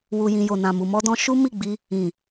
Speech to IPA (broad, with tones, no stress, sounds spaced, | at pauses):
w u˨ j ĩ˨ j o˨ n ã˨ m u˨ m ɔ˧ d ɔ̃˧ ʃ u˦ m i˦˨ ɡ͡b i˧ | ĩ˨